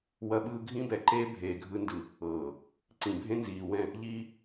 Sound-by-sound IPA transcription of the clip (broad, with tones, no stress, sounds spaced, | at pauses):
w ɐ˦ ɓ ɯː˦ ɡʱ ĩ˦ b ɛ˨ ǃ eː˦ bʱ eː˨ ɡʱ ɯ˦ n d ɯ˨ | ɤː˨ | ǀ ĩ˨ bʱ ẽ˦ n z iː˨ w ɛ̃˦˨ | ʎ iː˦